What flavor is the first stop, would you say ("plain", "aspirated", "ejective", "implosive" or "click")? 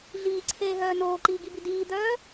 click